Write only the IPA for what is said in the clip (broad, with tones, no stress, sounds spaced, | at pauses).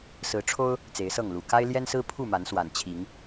s ɹ̩˨˦ ʈ͡ʂʰ o˦ ʊ̯ | t͡s e˨˦ ɪ̯ s ɤ˥˨ ŋ l u˨˩ k a˦ ɪ̯ l j ɛ˦ n s ɹ̩˦ pʰ u˥˨ m a˨˦ n s w a˨˩ n t͡ɕʰ i˨˦ ŋ